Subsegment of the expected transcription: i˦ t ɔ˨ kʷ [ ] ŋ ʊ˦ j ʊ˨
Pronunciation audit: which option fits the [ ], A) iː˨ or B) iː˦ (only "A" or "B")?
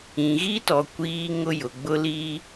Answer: B